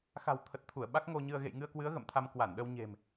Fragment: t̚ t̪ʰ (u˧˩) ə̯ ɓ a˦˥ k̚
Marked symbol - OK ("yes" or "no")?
yes